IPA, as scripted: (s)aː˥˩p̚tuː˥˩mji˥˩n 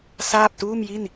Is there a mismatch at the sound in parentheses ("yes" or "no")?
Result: no